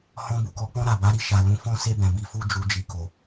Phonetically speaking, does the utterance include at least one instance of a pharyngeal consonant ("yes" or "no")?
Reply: no